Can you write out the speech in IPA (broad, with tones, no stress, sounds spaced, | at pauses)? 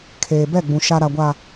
kʰ eː˨ b ɛ˦˨ ɡ͡b ũ˨ ʃ a˨ ɾ a˨ ɡʷ aː˨